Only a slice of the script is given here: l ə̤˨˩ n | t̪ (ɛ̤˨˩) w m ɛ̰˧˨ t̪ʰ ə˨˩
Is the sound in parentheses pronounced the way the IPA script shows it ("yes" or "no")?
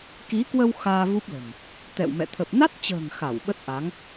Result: no